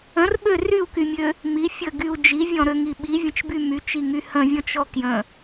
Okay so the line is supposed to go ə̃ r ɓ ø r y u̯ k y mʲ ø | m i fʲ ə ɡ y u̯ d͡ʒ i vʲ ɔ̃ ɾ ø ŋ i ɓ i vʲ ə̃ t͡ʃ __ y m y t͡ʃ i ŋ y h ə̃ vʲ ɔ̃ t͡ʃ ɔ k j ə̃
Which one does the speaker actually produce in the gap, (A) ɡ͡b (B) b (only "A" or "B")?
B